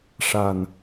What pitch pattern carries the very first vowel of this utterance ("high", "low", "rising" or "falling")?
low